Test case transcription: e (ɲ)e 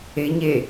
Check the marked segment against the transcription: correct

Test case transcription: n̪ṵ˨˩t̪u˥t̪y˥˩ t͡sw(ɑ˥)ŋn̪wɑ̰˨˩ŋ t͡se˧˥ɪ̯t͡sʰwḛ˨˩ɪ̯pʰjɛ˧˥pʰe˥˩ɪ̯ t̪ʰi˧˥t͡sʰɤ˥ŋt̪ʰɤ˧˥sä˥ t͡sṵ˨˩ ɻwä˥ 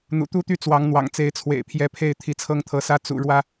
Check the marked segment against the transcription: incorrect: ɑ˧˥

